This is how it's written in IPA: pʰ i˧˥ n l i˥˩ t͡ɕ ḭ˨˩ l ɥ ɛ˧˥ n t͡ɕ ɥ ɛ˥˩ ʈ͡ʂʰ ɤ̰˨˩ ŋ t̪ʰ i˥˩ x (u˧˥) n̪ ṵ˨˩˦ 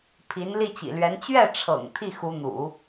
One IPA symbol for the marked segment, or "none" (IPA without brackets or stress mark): u˧˥